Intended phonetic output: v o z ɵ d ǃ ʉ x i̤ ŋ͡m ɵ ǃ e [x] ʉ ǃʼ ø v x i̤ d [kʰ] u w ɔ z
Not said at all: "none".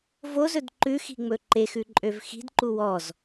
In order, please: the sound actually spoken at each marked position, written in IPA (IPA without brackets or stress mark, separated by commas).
x, ǃ